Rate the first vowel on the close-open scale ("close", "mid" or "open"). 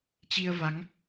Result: close